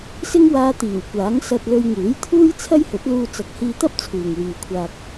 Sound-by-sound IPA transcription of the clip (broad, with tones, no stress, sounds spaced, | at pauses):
s ɪ˥ ŋ w aː˧ t̪ iː˨˩ w kʷ aː˨˥ ŋ s ɐ˧ t̚ l ɵ˧ ɥ ŋ uː˨˥ j t̪ʰ uː˥ j t͡sʰ ɐ˥ j h ɵ˨˥ t̚ l uː˧ t͡s ɐ˨ k̚ h iː˧ t̪ ɐ˥ p̚ t͡sʰ uː˨ ŋ w yː˨ kʷʰ aː˧ k̚